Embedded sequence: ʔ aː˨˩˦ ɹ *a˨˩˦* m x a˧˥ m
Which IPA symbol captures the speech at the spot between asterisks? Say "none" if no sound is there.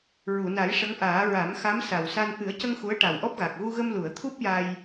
a˨˩˦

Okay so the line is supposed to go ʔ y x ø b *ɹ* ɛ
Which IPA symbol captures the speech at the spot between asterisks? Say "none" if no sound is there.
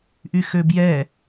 j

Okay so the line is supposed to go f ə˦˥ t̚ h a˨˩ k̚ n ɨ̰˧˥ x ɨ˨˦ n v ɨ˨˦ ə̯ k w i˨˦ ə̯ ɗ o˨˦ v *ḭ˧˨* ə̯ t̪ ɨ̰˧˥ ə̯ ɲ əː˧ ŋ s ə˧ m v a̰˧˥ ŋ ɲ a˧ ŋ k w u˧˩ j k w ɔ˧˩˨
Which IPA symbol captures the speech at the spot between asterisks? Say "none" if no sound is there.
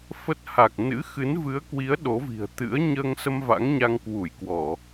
i̤˨˩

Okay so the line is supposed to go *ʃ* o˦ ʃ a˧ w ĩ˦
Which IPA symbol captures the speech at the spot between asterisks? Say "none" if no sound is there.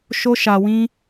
ʃ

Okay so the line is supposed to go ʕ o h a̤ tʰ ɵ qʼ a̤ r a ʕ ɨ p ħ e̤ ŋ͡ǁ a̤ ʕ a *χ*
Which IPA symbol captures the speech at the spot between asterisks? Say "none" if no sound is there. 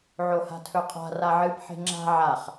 χ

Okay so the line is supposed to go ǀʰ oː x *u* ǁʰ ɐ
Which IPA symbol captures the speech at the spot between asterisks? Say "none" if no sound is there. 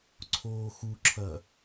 u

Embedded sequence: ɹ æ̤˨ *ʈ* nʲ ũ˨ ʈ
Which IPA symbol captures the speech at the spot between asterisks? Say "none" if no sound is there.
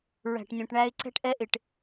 ʈ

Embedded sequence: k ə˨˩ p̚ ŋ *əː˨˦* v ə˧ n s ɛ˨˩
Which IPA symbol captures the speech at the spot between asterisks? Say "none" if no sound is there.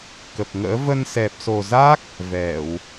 ə̰ː˧˥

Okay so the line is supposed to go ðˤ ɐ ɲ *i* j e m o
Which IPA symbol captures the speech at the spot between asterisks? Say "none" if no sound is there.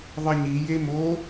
i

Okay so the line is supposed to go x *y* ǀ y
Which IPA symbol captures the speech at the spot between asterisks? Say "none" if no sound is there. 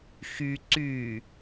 y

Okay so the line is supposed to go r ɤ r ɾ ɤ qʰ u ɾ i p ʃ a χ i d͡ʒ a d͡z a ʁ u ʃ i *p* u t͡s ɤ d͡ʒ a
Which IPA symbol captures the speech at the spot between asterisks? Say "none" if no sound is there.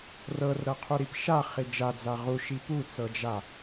p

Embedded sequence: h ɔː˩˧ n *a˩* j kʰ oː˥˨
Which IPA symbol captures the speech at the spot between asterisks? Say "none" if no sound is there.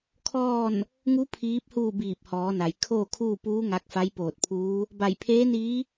a˩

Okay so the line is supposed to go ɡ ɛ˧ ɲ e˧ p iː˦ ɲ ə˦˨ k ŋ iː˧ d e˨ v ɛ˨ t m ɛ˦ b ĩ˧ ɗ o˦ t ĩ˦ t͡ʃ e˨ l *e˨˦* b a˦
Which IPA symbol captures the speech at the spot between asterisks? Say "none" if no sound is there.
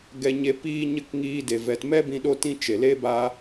e˦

